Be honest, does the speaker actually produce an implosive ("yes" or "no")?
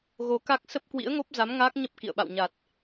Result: yes